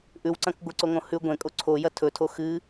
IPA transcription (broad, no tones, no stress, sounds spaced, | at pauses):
ʔ ʉ w ǀ ɐ̃ k ɡʷ ɨ ǀ o ŋ õ h ʉ ɡʷ ẽ kʼ o ǀʰ o j ɐ tʰ ɵ tʰ o x ɨ